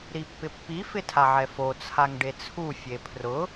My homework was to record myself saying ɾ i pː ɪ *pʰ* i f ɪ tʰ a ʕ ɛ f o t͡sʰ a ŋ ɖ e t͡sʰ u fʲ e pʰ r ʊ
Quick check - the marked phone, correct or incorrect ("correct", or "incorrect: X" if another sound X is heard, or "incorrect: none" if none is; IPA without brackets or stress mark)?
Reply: incorrect: pː